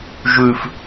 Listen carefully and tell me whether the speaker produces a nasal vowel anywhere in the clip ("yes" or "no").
no